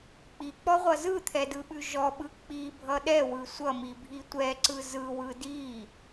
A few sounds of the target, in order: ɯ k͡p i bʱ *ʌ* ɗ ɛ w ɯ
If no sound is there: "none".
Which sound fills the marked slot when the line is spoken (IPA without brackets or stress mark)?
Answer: ʌ